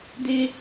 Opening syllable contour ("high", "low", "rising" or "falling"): high